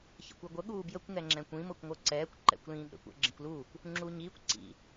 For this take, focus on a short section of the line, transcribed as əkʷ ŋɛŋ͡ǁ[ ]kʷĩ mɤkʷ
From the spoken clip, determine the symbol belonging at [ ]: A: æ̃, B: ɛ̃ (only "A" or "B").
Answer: B